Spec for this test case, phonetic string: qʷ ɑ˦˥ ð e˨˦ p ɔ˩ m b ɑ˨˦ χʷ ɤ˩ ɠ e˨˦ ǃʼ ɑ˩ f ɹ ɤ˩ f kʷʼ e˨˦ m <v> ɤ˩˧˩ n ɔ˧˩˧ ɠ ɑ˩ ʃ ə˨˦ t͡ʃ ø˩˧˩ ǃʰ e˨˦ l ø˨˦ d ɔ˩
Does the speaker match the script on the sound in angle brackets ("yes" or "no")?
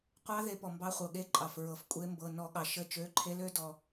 no